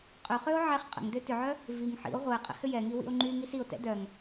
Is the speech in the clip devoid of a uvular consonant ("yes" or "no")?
no